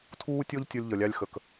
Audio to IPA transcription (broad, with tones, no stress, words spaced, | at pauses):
tʰuː˦tʲɔ˦ʎ tʲɔ˦lʲʎʌ˨lʲɑ˦lʲ xə˨k